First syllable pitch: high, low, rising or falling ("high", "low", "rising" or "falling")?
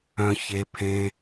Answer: high